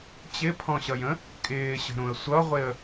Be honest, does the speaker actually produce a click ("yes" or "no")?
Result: no